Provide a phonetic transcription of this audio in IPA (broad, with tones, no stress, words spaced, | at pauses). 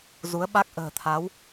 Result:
zu˨˦ə̯ɓa˦˥k̚ ʔə̤ː˨˩t̪ʰa˨˦w